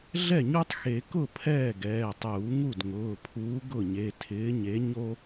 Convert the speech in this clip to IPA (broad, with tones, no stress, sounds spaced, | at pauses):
ɮ ɛ˥˩ ɲ u˦ tˤ x e˨˩˦ k ʊ˥˩ pʰ ɛː˥˩ ɡ ɛː˩˧˩ tˤ uː˨˩˦ ŋ u˥˩ d ŋ ʊː˩˧˩ pʰ uː˨˥ ɡ ʊ˥˩ ɲ e˩˧˩ tʰ ɪː˨˥ ɲ e˨˥ ɲ o˦